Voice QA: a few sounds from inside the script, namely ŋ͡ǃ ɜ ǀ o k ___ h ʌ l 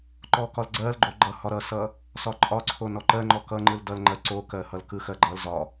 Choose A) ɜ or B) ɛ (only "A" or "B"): A